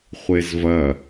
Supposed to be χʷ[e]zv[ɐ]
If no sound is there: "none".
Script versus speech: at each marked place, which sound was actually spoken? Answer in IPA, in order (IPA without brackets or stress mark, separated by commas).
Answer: e, ɐ